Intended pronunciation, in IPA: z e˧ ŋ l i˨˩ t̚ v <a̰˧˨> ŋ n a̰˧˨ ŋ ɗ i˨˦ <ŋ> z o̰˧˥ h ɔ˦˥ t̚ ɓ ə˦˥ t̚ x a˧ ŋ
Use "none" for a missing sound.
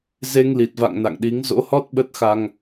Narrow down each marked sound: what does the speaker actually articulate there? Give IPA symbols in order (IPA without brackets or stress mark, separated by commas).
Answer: a̰˧˨, ŋ